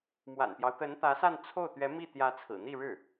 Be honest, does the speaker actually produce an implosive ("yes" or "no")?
no